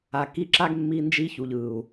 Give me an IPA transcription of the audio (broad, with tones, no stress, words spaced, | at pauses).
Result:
a˨ki˧ǁa˦ɡmːi˧ nd͡ʒi˦çu˨ʎ ɯ˨u̯